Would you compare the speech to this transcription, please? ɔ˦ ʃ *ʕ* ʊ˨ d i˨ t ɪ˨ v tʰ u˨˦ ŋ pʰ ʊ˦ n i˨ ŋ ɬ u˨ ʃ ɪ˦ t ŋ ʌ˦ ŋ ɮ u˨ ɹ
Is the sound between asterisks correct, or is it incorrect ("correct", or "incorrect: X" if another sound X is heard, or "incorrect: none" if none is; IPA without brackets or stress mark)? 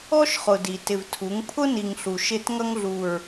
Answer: incorrect: χ